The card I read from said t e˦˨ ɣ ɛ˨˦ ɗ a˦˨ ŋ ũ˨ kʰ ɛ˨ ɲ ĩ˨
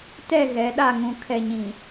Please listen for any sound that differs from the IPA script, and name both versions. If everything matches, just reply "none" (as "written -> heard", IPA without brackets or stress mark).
e˦˨ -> ɛ˦˨